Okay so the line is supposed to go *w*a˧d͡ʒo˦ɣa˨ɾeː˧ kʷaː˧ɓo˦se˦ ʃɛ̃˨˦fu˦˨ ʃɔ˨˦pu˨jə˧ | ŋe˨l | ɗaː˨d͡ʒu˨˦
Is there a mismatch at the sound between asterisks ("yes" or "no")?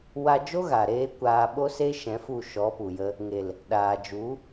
no